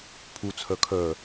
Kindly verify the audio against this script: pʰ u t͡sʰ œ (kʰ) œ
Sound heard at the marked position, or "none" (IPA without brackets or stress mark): kʰ